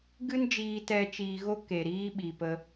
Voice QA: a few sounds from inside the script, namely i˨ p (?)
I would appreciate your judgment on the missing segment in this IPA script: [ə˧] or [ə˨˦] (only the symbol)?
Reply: ə˧